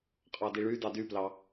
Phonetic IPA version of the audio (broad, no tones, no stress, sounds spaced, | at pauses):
qʼ ɑ d i ɭ y d ɑ d y p l ɑ